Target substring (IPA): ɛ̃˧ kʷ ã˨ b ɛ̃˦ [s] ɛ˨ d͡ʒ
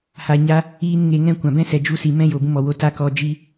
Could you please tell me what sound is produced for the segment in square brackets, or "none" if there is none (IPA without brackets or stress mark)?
s